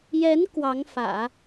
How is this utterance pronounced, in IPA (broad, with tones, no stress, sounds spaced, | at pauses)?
j ɛ˧˥ n k w ɑ˧˥ ŋ f ä̰˨˩˦